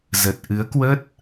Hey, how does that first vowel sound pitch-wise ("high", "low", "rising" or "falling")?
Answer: low